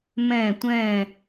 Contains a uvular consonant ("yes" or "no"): no